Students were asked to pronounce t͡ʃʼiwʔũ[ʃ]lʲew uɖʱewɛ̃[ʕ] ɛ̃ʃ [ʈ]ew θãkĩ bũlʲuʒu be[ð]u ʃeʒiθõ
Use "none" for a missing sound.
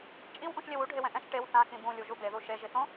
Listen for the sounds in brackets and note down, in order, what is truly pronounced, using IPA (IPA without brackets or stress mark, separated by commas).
ʃ, ʔ, ʈ, ð